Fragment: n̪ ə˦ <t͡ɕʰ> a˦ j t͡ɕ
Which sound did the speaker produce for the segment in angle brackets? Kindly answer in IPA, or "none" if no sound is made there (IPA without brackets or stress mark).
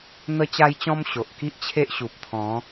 t͡ɕ